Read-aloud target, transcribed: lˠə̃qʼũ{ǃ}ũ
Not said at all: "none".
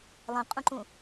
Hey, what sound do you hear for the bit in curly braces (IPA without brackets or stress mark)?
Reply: ǃ